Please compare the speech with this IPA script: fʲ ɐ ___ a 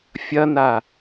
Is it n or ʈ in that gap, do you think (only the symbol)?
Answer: n